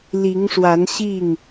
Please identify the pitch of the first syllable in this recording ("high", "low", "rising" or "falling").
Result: rising